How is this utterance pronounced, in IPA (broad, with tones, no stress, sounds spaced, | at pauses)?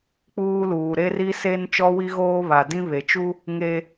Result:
k͡p uː˦ l uː˨ ɾ e˦ r i˦ s e˦ n t͡ʃ ɔ˦ w i˦ ɣ oː˦ β a˨ d ĩ˦ β e˨ t͡ʃ u˦ | ŋ e˦